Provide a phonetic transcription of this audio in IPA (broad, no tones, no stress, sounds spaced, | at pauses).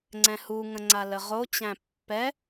ŋ͡ǀ ɛ̃ h u ŋ ə̃ ŋ͡ǀ a l ə ʁ o t͡ɕ æ̃ pː ɛ